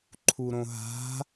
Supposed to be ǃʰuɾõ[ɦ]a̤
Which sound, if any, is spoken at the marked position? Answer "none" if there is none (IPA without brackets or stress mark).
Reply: ɦ